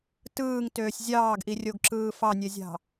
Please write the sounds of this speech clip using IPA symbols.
t ɯː ŋ t øː sʲ zʲ ɑː ɡ ʔ i rʲ o ɡ ǁ ɯː f ɑ nʲ e zʲ ɑ̤

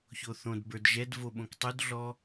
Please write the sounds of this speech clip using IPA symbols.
ç o θ õ d b ə˞ d ʒ ɛ d v o ɓ õ k tˤ u d ɮ ɔ

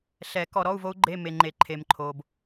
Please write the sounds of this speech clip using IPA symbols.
ɬ ɛ˨˩˦ k ɔ˨ ɾ ɔ˧˥˧ u̯ v o˦˥ u̯ ɡ͡ǃ e˧˥˧ m e˨ ŋ͡ǃ e˨˩˦ ǃʰ e˨ m ǃʰ o˨ b

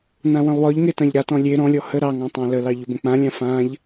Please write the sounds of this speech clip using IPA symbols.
n ã w ə̃ lˠ w ɒ ʎ ŋ e t ɑ̃ ʎ ɾ a t ɔ̃ lʲ e ɾ ɔ̃ lʲ ɔ h ə ɾ ɑ ŋ ɑ̃ tˤ ɑ̃ l ə l ɑ ʎ ʊ b ə̃ k͡p ã lʲ ã f ã ʎ

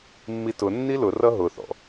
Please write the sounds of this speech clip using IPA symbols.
mː i t ʊ nː i l ʊ r ʌ ɦ ʊ θ ɔ̰

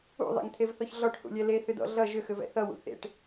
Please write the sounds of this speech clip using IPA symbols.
ṵ ðˤ ḛ ŋ t̪ʰ e v θ ɔ ç ɮ ɔ ʈ h ṵ lʲ ɛ l e θ ʏ d ɔ̰ ɮ ʌ ʒ ʏ x ʏ v ɛ̰ θ ʌ w ṵ θ ḛ ʈ

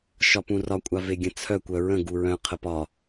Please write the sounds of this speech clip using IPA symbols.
ʃ ɒ p ũ r ɒ kʷʼ a v e ɡʲ ə̃ t͡sʰ œ kʷ œ ɹ ə̃ ɡ u ɹ œ̃ qʰ ə p ɒ

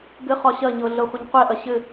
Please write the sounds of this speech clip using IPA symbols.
ɡ ɘ χ ɒ ɕ ɐ ɲ ɤ ɮ ɤ χʷ ɛ ɲ qʷ ɛ ʔ ɐ ɕ ɘ

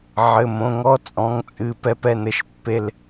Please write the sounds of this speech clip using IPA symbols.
ʕ ɘ˩˧˩ m õ˩˧˩ ŋ ɔ˦ t͡sʼ ɔ̃˩˧˩ ŋ t͡sʼ ɨ˩˧˩ p ɛ˦ p ɛ˦ n ɘ˩˧˩ ʃ pː e˦ l

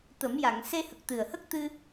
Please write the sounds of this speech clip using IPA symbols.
t̪ ə˨˩˦ m j a˨˩˨ ŋ s e˧ h ə˨˩ k̚ t̪ ɨ˨˩ ə̯ h ə˦˥ k̚ t̪ ɨ˧

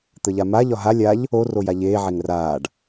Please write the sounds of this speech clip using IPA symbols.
t̪ ə ʎ a m a ʎ ɒ ɦ a lʲ a ʎ | o r o j a ʎ eː ʕ e ŋ r aː ɖ

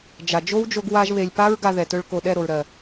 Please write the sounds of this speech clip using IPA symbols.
d͡ʒ a˨ d͡ʒ o˦ w d͡ʒ o˧ ɡ w a˧ ʒ β e˨ lʲ p a˦ ɹ ɡ a˧ ð ɛ˨ t ɵ˧ ɭ k o˨ ɗ ɛ˦˨ ɾ o˨ ɹ ɾ ɜ˨

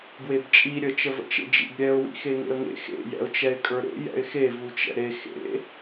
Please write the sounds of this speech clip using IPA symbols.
ɡ w e b t͡ʃʼ i ɾʲ ə t͡ʃ ə v ə̰ t͡ʃ ḛ d͡ʒ ḭ b ɾʲ ɛ ʊ̯ w ḭ x e ŋ ḛ ə̯ ŋ ḛ x ḛ j ɛ̰ ʊ̯ t͡ʃ ɛ ɪ̯ kʼ ə˞ ɾ ḛ j ɛ̰ ɪ̯ x e v u t͡ʃ ɛ̰ ɾ e x ḛ

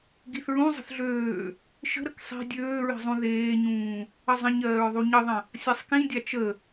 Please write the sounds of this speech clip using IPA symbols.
ɡ i θ ɹ ũ zˤ ə̤ θ ɮ øː | ʃ ə̤ ɾ ə k sˤ i̤ dʲ øː ɹ i̤ zˤ ũ ð eː ɲ ũː | ə zˤ ə̃ ɲ ɜː ɹ ðˤ u ɲ ə ðˤ ə̃ | sʲ a sˤ k ĩ dʲ a t͡ʃ ə

